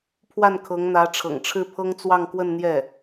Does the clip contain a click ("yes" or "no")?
no